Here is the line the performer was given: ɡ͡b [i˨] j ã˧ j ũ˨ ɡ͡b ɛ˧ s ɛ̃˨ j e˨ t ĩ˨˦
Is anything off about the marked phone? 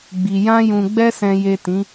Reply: no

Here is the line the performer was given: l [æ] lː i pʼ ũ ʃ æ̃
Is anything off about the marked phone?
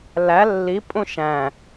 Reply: no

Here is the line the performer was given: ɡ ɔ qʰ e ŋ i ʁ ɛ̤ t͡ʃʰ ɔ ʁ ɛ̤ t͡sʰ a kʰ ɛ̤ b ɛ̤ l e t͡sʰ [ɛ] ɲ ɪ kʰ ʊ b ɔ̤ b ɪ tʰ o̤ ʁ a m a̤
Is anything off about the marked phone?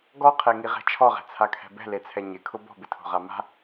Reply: no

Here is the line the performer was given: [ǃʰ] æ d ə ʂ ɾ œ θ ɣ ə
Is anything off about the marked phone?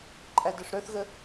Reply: yes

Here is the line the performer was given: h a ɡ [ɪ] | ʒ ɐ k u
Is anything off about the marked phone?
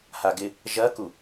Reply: no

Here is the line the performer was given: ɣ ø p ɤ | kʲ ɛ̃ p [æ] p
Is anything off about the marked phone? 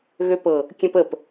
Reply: yes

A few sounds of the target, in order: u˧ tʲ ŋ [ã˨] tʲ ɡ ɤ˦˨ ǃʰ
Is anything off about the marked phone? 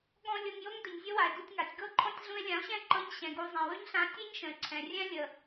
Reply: yes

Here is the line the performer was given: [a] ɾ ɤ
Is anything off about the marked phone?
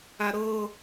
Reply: no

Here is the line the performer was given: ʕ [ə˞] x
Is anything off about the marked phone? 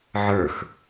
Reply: no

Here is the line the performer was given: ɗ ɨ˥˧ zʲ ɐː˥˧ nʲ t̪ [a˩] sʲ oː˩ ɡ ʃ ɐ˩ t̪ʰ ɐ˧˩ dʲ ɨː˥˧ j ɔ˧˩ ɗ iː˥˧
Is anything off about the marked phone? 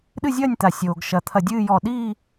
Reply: no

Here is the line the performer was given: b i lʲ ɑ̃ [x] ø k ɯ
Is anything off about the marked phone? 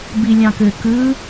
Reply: yes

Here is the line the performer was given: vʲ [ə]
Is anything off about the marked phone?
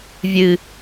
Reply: yes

